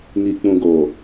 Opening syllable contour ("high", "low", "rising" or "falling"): low